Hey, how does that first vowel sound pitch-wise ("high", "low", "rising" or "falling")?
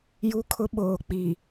high